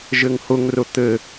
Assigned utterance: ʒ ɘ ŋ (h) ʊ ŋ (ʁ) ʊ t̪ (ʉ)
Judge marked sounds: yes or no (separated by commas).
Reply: yes, no, no